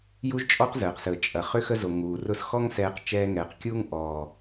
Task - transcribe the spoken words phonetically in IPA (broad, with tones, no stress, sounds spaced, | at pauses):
j u˦ ʒ t͡ʃʼ ɔ˦ q z əː˨ q s əː˨ t͡ʃʼ ɐ˨ χ ʏ˧ x ə˧ z o˨ ŋ uː˨ r ʊ˧ s x ɔ˦ ŋ s ɛː˧ q t͡ʃ ɛː˧ ŋ ɛː˨ q kʲ uː˦ ŋ ʔ ɔː˨